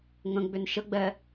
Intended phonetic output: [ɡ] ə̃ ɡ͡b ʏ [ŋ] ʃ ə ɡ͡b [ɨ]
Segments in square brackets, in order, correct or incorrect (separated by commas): incorrect, incorrect, incorrect